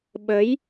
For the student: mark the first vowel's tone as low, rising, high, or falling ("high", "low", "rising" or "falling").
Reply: rising